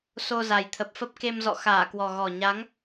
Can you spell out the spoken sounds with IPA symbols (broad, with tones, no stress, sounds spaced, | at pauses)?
s o˧ z a˨˩ j t̪ʰ ə˨˩ p̚ f ə˦˥ p̚ k e˧ m z ɔ̰˧˨ x aː˧˩ k w ɔ˨˩ ɣ ɔ˨˩ ɲ a˨˦ ŋ